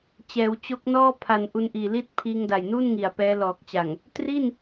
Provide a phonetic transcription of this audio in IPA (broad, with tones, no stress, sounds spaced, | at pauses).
t͡ɕ ɛː˩˦ w t͡ɕ o˦˥ k̚ n ɔː˥˩ pʰ a˨˩ n ʔ u˧ n ʔ iː˨˩ l i˥˩ t̚ pʰ iː˧ ŋ d a˨˩ j n uː˥˩ n ŋ i˨˩ a̯ p ɛː˦˥ l ɔː˨˩ k̚ t͡ɕ a˨˩ ŋ | t r i˥˩ n